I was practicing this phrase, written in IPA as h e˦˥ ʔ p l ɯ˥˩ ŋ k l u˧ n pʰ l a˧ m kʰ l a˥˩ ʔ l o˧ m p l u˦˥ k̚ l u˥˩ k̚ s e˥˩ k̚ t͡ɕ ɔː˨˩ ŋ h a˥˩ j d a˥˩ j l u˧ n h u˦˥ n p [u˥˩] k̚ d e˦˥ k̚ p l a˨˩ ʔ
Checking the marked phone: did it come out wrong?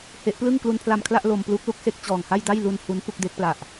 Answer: no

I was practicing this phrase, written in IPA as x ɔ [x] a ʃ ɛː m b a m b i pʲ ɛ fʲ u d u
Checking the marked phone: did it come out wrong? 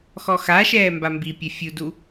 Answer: no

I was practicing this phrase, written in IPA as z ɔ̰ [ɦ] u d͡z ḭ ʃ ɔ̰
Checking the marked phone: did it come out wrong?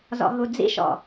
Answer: no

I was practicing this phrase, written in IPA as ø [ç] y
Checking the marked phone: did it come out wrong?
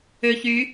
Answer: no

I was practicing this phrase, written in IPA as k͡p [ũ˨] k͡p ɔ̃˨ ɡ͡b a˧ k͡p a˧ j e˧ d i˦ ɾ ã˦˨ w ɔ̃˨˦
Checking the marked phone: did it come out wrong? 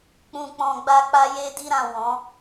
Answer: no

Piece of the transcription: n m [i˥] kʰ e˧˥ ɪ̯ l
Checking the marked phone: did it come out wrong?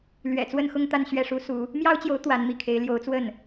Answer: yes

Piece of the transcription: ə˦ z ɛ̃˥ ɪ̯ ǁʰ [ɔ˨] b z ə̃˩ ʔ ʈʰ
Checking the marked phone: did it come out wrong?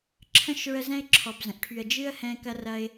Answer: no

